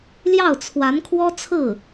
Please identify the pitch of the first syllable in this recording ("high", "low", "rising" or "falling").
falling